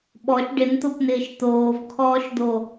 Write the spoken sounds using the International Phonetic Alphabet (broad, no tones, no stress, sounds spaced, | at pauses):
ɓ ɔ ʃ ɖ ɪ n t̪ o p n ɪː ʃ t̪ oː v kʰ ɔː ʃ d̪ o